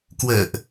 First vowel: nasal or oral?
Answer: oral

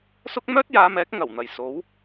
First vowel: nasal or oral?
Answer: oral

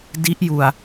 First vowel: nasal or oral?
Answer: oral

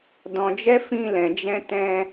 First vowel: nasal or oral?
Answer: nasal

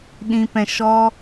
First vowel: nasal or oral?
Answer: nasal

